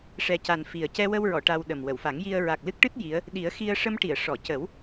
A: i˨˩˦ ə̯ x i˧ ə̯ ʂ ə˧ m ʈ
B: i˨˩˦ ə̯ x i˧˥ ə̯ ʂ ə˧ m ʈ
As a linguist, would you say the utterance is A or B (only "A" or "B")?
A